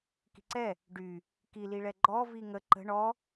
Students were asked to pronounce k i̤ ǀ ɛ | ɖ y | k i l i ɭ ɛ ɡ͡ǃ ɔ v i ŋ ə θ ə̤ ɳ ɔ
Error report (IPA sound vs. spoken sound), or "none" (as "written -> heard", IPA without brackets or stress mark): θ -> ǃ